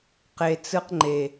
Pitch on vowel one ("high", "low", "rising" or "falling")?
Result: low